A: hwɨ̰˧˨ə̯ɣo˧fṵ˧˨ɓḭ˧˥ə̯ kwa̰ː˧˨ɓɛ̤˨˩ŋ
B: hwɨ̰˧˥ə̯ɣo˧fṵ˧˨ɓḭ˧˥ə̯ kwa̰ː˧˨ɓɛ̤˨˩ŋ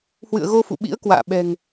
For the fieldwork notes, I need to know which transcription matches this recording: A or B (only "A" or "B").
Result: A